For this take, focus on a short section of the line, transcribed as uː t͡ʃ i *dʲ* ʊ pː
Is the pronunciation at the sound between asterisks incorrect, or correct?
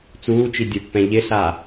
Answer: correct